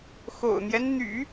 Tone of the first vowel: low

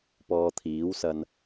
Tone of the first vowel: low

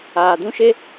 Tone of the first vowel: low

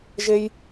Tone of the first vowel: high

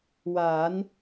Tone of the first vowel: rising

